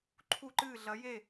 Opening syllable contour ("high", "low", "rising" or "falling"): falling